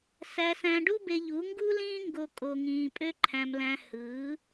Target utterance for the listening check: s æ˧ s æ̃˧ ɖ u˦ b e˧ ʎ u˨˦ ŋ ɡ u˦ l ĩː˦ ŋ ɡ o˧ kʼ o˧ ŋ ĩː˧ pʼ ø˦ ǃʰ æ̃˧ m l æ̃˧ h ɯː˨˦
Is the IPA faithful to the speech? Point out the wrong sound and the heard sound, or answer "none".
none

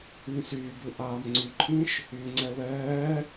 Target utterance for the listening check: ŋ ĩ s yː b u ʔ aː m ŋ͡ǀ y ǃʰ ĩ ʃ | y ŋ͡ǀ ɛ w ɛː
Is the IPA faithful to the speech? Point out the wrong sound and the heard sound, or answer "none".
none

